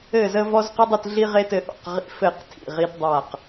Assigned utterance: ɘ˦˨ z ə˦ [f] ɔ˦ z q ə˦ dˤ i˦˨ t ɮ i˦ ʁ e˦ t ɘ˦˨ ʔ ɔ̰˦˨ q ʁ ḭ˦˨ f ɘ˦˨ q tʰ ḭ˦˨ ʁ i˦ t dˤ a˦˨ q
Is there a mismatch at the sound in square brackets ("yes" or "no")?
yes